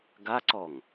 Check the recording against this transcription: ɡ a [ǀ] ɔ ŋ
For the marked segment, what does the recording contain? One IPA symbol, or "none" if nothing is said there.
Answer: ǀ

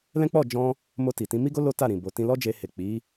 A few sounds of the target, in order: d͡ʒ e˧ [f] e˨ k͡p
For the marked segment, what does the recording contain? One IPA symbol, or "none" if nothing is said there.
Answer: h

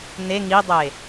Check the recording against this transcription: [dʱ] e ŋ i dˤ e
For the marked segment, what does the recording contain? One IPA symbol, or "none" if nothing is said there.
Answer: n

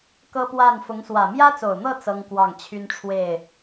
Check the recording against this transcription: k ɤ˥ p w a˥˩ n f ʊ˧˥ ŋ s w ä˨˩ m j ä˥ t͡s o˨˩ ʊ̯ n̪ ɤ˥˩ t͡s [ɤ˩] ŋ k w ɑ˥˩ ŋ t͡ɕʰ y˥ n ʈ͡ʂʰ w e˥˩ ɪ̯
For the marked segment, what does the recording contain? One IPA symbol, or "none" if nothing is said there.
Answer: ɤ˥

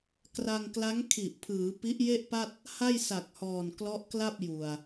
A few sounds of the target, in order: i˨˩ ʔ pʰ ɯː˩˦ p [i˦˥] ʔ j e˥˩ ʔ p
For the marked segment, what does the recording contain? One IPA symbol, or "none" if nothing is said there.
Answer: i˦˥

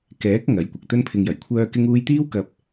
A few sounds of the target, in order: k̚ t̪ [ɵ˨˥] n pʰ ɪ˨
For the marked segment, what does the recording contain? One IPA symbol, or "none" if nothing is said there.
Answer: ɵ˥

